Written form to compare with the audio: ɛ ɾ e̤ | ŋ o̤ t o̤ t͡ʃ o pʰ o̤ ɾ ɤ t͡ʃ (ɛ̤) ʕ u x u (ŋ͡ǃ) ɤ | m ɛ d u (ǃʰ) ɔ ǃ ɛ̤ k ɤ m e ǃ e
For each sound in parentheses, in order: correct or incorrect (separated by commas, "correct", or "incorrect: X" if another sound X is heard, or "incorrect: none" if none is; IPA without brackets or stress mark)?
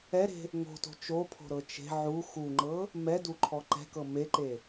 incorrect: e̤, correct, correct